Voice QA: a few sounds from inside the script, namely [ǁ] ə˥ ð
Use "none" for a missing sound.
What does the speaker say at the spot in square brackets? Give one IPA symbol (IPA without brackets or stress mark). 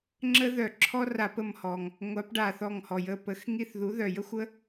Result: ŋ͡ǁ